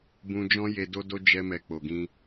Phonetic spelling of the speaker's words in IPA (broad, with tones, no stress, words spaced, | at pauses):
bũ˧d͡ʒɔ̃˦ je˧do˦do˦ d͡ʒɛ˧mɛ˨ k͡po˨ɡĩ˧